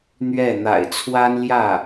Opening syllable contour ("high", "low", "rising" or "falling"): falling